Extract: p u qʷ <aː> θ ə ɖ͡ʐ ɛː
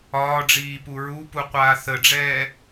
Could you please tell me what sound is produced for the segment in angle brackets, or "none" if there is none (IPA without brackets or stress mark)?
aː